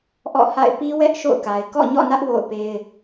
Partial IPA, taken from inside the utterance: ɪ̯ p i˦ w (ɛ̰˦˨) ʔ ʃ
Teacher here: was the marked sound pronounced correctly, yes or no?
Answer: no